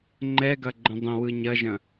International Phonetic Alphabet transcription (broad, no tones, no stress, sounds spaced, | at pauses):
ŋ͡ǃ ɛ ɡ ɐ ɡ͡ǃ ə̃ dˤ ə̃ w ɯ ɲ ɐ ʒ ɐ̃